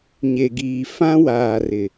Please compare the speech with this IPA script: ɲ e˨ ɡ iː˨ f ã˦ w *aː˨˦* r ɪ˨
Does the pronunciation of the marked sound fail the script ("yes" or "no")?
yes